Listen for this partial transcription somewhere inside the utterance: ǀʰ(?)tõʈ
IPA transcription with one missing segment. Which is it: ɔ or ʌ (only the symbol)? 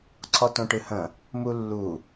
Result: ɔ